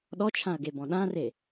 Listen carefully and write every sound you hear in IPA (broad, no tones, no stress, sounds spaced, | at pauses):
ɗ ɔ t͡ʃʰ ã ɐ̯ ɡ e b ɔ̃ ɗ ã r e